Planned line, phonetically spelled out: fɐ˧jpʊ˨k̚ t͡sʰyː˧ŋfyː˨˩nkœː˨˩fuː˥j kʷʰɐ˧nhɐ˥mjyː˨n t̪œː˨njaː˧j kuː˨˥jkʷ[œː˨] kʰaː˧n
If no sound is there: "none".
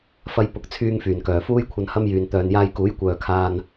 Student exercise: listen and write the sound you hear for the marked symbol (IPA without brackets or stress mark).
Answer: œː˨